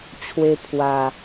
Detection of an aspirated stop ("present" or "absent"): present